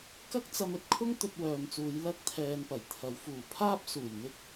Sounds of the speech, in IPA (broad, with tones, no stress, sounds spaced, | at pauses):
k ɐ˥ k̚ t͡s ɐ˧ m ɵ˨ t̚ kʰ ʊ˥ ŋ t̪ ɵ˧ t̚ w œː˨ m t͡s uː˨˧ j l ɐ˥ k̚ t̪ʰ ɛː˧ n p ɐ˨˩ j t̪ʰ ɐ˨˧ w f uː˨˩ pʰ aː˥ p̚ s uː˨˩ j n̪ ɪ˥ k̚